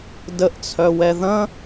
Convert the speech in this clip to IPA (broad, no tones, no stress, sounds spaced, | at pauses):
d ə ʔ t͡sʰ œ w ɛ ð ɐ̃